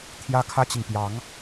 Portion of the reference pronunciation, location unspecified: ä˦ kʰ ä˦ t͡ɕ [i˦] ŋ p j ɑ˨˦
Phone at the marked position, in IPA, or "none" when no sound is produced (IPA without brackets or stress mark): i˨